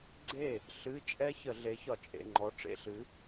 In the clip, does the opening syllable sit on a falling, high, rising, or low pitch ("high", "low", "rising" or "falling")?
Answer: falling